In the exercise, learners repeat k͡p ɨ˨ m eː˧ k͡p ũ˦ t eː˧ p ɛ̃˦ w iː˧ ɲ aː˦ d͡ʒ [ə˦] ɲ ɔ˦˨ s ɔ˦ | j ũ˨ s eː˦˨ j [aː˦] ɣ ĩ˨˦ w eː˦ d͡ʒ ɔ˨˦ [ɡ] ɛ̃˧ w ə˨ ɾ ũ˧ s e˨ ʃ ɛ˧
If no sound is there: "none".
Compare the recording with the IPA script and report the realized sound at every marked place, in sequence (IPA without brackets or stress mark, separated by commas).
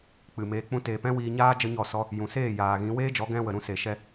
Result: ə˦, aː˨, ɡ